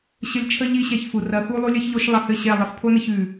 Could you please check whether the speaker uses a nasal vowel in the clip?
no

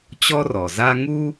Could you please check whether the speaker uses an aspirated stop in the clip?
no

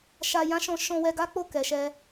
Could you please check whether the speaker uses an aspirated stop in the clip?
no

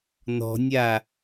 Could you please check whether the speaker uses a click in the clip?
no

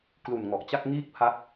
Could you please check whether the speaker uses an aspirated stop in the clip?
yes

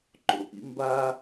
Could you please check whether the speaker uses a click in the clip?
yes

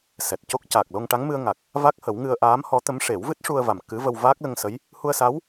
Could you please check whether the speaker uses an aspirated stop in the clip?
no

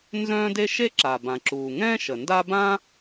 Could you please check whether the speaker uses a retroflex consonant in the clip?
no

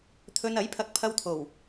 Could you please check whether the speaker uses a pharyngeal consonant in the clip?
no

